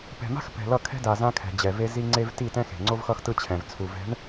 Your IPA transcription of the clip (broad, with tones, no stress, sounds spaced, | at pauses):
p ɛ̤˨ m a̤˦ x p ɛ̤˨ l ʌ˦˨ kʰ ɛ̤˦ d a˨ z ã˦ kʰ ɛ̤˨ d͡ʑ ɛ˨ v e˦ z i˦ ŋ͡ǀ e˦ v t i˦˨ t ɛ̃˦ x e̤˨ ŋ͡ǀ o˦ v x ʌ˦ x t ɯ˦ t͡ɕʰ ɛ̃˨ v t͡sʰ u˨ v ɛ̤˨˦ ɳ